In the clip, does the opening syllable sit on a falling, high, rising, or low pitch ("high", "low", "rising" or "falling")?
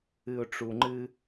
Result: low